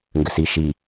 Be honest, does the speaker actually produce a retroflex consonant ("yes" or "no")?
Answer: no